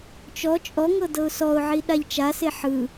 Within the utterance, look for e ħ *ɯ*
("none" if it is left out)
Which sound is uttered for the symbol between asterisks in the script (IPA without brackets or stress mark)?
ɯ